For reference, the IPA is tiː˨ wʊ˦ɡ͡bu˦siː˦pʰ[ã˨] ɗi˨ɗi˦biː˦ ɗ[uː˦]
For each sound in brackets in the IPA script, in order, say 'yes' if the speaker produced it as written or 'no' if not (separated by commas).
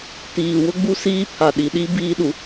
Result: no, no